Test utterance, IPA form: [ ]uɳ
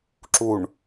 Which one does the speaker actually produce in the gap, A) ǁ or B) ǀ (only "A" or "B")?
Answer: A